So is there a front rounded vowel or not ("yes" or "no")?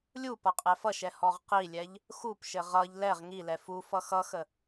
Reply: no